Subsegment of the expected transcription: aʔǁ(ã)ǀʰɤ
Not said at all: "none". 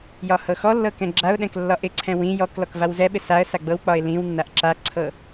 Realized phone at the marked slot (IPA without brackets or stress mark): a